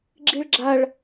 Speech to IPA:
ɡ͡ǁ i ɭ ɡ͡ǁ a ɭ

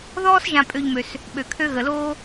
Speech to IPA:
ð ɔː˥ s ʒ ã˨ pʼ ø˨ ʎ m ø˩ s | ɓ ø˩ kʰ ø˦ ɣ ə˩ l oː˥

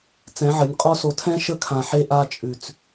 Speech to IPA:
t͡s ɛ̃˨˦ ʕ ə˨˦ nʲ qʼ ɔ˦ s o˨ tʰ ɛ̃˦ ʃ ə˦ kʰ ã˨ ħ e˦ ʔ a˦ t͡ʃʼ ʉ˨ t͡s

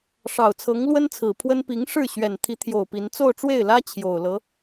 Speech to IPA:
ʂ ɑ˨˩ ʊ̯ t͡sʰ ɤ˧˥ ŋ l w ə˥ n t͡sʰ ɹ̩˨˩ pʰ w ə˥ n p i˧˥ ŋ ʂ ɻ̩˥˩ ɕ ɥ ɛ˨˩ n t̪ʰ i˧˥ t̪ʰ j o˨˩ ʊ̯ p i˧˥ n t͡s o˥˧ ʊ̯ ʈ͡ʂ w e˥˩ ɪ̯ l ä˥ t͡ɕʰ j o˨˩ ʊ̯ l ɤ˧˥

